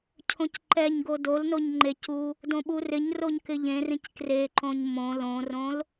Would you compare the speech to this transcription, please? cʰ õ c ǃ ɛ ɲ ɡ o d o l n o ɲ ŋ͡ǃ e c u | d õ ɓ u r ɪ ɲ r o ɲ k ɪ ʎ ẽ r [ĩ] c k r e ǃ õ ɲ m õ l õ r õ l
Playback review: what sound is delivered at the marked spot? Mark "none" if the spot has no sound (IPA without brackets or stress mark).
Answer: ĩ